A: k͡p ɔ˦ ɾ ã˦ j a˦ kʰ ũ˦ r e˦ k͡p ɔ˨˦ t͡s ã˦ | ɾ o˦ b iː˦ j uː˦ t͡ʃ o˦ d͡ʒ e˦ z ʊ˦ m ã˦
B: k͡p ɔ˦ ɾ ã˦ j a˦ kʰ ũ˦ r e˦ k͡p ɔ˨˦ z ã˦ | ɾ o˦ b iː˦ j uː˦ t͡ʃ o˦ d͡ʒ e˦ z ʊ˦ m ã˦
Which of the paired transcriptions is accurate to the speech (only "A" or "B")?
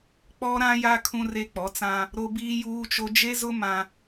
A